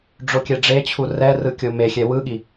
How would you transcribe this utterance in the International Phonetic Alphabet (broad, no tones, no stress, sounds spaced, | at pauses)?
ɖ͡ʐ o kʲ ɛ ɖ͡ʐ e t͡ɕʰ u r ɛ r ɯ kʲ o m e xʲ ɛ w ɯ ɠ i